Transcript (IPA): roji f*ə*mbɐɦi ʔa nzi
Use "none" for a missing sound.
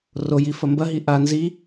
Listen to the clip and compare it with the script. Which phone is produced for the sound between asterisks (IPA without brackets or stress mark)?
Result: ɐ